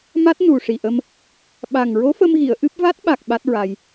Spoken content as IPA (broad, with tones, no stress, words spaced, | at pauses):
ma˦˥t̚ nu˨˩ ʂi˨˩ʔə˧m | ɓa˨˩ŋ ɹo˧˥fə˧mɣi˨˩˨ə̯ ʔɨ˦˥p̚ va˦˥t̚ɓa˨˩k̚ ɓa˦˥t̚ɹa˧j